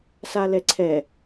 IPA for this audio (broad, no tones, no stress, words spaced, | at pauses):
salɛǀʰɛ